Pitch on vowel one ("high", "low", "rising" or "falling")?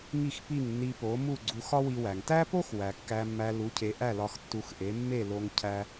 falling